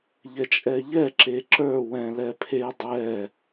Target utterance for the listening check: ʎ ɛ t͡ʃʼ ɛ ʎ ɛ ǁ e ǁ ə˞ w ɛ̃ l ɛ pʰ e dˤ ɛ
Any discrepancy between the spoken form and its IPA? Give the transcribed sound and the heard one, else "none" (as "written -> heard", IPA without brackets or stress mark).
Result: none